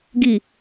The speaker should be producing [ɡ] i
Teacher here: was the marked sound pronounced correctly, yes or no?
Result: yes